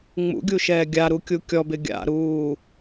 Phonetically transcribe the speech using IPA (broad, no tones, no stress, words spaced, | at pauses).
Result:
ŋ͡mṵɡʲuʃɛː ɡʲaɾukʲu kʲɔbɪ ɡʲa̰ɾuː